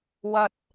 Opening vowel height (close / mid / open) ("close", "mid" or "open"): open